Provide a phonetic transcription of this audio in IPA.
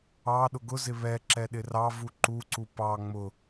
ɑ ɗ ʊ ɡ ʊ z ɪ β ɛ ǁ ɛ ɗ ɪ r ɑ v u ǃ u ǀ u p ɑ ŋ͡m ʊ

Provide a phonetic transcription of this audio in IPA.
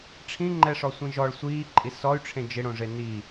ʈ͡ʂʰ ĩ ŋ͡ǃ ɛ ʂ ɔ sʷ ĩ ʒ ɔ ɭ sʷ iː ǃʼ i s ɔ y̯ ʈ͡ʂʰ ẽ d͡ʒ ɪ ɽ õ ʐ e n i

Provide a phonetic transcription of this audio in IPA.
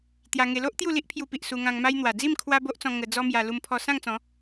t̪ j a˧ ŋ e˧ l o˦ ʔ t̪ j u˥˧ l i˦ ʔ pʰ j u˧ p i˨ ʔ s u˧ ŋ ã˧ ŋ m a˦ j n̪ w a˨˩ d͡z i˥˧ m kʰ w a˦ b o˦ ʔ t͡s ɔ̃˧ ŋ ə˧ d͡z ɔ˦ m j a˧ l u˧ m pʰ ɔ˧ s ã˥˧ ŋ t͡s ɔ̃˨˦

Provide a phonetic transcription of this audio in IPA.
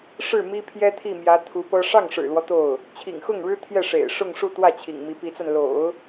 ʂ ɻ̩˥˩ m i˥ pʰ j ɛ˥ t̪ʰ i˥˩ m j ä˧˥ t̪ʰ u˧˥ p ɤ˥ ʂ ɑ˥˩ ŋ ʂ ɻ̩˨˩ l w ɔ˦ t̪ o˥˩ ʊ̯ | t͡ɕʰ ḭ˨˩ ŋ x ʊ˥˩ ŋ ɻ ɻ̩˥ t̪ʰ j ɛ˥˩ ʂ ḛ˨˩ ɪ̯ ʂ ʊ˥˧ ŋ ʂ u˥˧ t̪ w ä˥˩ t͡ɕʰ ḭ˨˩ ŋ m i˧˥ p i˧˥ t͡s a˧ n l o̰˨˩˦ ʊ̯

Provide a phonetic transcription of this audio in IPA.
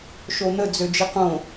ʃ o n̪ ə d͡z ø d͡ʒ i q õ

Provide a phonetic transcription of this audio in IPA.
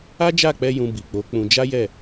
a˦ d͡ʒ a˦˨ k͡p ɛ˧ j ũ˧ b i˨ k͡p o˨˦ k͡p ũ˧ d͡ʒ a˦ j ɛ˦˨

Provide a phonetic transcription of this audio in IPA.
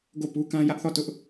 ɡ o˦˨ p u˦ k ã˦ j ä˦ ʔ θ ɔ˦˨ t ʊ˦ ʔ

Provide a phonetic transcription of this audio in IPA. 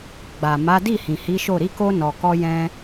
ɡ͡b a˨ m a˨˦ d i˦˨ h ĩ˨ h i˨˦ ʃ o˦˨ ɾ i˨˦ k o˧ n ɔ˨ k ɔ˧ j ɛ̃˧

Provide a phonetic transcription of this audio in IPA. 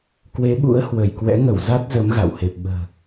k w e˨˦ ɓ ṵ˧˥ ə̯ h w ə˧˩ j k w ɛ̰˧˥ ŋ ə˧˩ w z a˦˥ t̚ z ə˨˦ m ɣ a̰˧˨ w h e˨˩ p̚ ɓ ə̤ː˨˩

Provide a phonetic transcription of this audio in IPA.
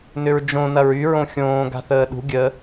n ʏ ɹ d͡ʒ õ n ɐ ɹ y ɹ õ xʲ õː ɡ a̤ θ əː ɗ ṳ ɡʲ ə

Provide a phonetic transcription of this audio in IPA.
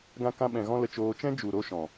ɡ ã˧ k ã˧ ɓ ɛ̃˨ ɣ ɔ̃˦ l ə˧ t͡ʃ oː˧ t͡ʃ ɛ̃˦ d͡ʒ u˨ ɾ o˧ ʃ ɔ̃˨

